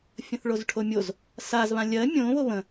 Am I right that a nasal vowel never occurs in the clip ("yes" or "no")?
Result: no